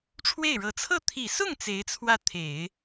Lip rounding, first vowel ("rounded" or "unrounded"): unrounded